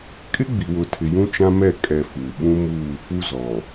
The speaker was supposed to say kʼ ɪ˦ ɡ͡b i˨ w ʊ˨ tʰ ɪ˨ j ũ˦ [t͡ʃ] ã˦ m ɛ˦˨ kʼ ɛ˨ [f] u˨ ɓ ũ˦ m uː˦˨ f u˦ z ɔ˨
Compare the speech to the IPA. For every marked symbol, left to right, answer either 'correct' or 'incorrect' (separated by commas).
correct, correct